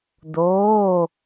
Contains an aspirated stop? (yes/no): no